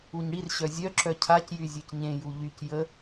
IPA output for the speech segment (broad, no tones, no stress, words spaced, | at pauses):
uɲɽirɕœ zʲœǁœ cʰacjy zʲœcɲẽju ʎyc jə